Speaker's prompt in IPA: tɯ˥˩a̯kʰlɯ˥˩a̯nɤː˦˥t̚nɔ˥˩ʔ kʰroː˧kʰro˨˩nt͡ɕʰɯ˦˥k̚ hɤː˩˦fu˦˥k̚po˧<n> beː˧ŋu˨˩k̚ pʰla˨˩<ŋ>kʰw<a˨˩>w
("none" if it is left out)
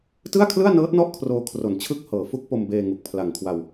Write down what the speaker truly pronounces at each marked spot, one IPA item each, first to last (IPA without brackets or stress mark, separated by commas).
m, ŋ, a˧